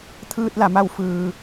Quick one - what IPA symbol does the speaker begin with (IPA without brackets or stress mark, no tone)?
t̪ʰ